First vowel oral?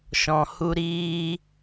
no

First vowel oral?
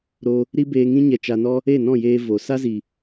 yes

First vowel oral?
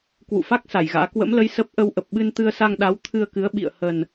yes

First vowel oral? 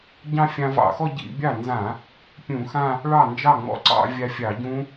no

